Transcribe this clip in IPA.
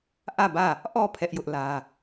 ʔ ä˦˨ b ä˦˨ | ʔ ɔ˦˨ pʰ ɛ˦ ʔ j ʊ˦ ʔ l ä˦

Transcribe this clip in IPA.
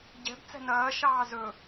ɟ ɛ̤ b t͡s ɛ̤ n ɐː ʃ ɑː z ɵ

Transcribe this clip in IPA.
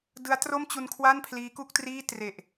d ɯ˦˥ a̯ t r o˥˩ m t͡ɕ u˧ n kʰ w a˥˩ n pʰ l iː˦˥ k u˥˩ k̚ t r iː˥˩ t r e˨˩ ʔ

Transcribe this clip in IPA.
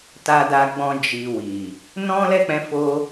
t a˧ d a˧ ɡ͡b ɔ̃˧ d͡ʒ i˨ w i˨ | n ɔ̃˦ l ɛ˦˨ k͡p ɛ̃˨˦ f o˦

